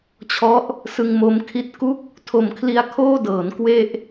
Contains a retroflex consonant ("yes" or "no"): no